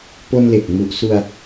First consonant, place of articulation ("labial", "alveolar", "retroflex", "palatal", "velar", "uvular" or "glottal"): labial